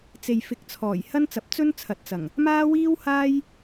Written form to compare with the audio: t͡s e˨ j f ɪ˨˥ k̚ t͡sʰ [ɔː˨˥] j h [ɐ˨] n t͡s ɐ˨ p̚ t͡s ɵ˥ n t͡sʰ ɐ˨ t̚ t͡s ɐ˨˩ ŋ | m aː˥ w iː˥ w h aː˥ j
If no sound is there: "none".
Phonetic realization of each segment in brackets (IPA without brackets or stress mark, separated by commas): ɔː˨˩, ɐ˥